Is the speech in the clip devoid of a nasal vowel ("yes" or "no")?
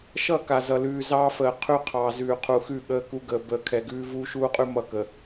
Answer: yes